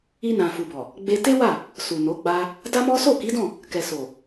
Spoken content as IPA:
i˧ n ã˨ f u˨ b ɔ˨ | ɡ͡b e˧ t e˦ w a˦˨ | s u˨ n o˨˦ ɡ͡b a˦ | d a˦ m ɔ˦ s o˦˨ k i˨˦ d ɔ̃˦˨ | k ɛ˨ s o˨

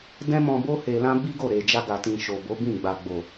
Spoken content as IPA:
d ɛ̃˦ m ɔ̃˧ b o˦ h e˧ l ã˦ b i˦ ɡ o˦˨ ɾ e˨ d͡ʒ a˧ ɡ a˨ t ĩ˨ ʃ o˨ b o˨˦ b ĩ˦˨ ɡ͡b a˨ ɡ͡b o˨

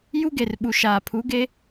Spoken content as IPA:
j u˦ ɡ e˨ r ɓ u˨ ʃ aː˨ pʰ u˨˦ ɡ e˦

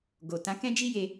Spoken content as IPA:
ɡ o˨ t ã˨˦ k ɛ̃˦ d͡ʒ i˦ j e˧

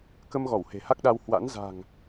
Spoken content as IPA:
k ə˧ m ɣ ɔ˧˩ w h e̤˨˩ h a˦˥ k̚ ɗ a˧ w h w a̰˧˥ n z a̤˨˩ ŋ

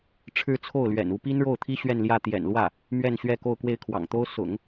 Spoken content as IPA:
ʈ͡ʂʰ ɻ̩˥˧ t͡sʰ o˥˩ ʊ̯ l ɥ ɛ̰˨˩ n u˧˥ p i˥ n ɻ o˥˩ ʊ̯ t̪ʰ i˥ ɕ ɥ ɛ˥˧ n l j ä˥˩ t̪ j ɛ̰˨˩ n l w ä˥˩ | m ɥ ɛ˥˧ n ɕ ɥ ɛ˥˧ k o˥˧ ʊ̯ k w e˥˩ ɪ̯ kʰ w ɑ̰˨˩ ŋ t̪ o˥ ʊ̯ s ʊ̰˨˩˦ ŋ

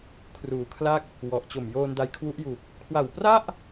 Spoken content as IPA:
kʰ r uː˨˩ kʰ l a˥˩ k̚ | w ɔ˨˩ ʔ t͡ɕ o˨˩ m j oː˧ n d a˧ j kʰ w u˦˥ ʔ j u˨˩ k̚ | kʰ w a˨˩ w p r a˥˩ ʔ

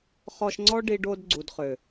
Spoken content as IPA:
χ ɔ˧ ʃ ŋ͡ǀ ɔ˦ ɖ i˧ ɖ o˧ d ɡ͡ǀ u˨ d χ ø˨

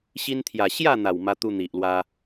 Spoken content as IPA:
ɕ i˧ n t̪ʰ j a˨˩ ɕ j a˥˧ n̪ a˨˩ w m a˧ t̪ u˧ n̪ i˨ ʔ l w a˧

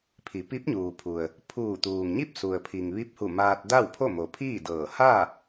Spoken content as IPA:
pʰ i˩˧ p i˧˥ p̚ ɲ uː˩ pʰ u˩ ə̯ | pʰ uː˧˩ t̪ uː˩ ŋ ɲ i˥˨ p̚ s u˩ ə̯ pʰ i˩ ŋ ʋ i˧˥ p̚ h u˧˩ m aː˧ t̚ d a˥˨ w pʰ o˥˨ m o˩ pʰ iː˥˨ d ɤː˧˩ h a˥˨

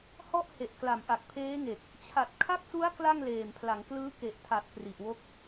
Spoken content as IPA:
h ɔ˥˩ ʔ h e˨˩ ʔ k l a˩˦ m ʔ a˨˩ k̚ pʰ eː˦˥ ŋ e˨˩ k̚ | t͡ɕʰ a˨˩ t̚ kʰ a˦˥ k̚ s u˦˥ a̯ k l a˥˩ ŋ l eː˨˩ m pʰ l a˩˦ ŋ k l ɯː˦˥ k e˨˩ ʔ tʰ a˨˩ t̚ p r i˨˩ ʔ w o˦˥ k̚

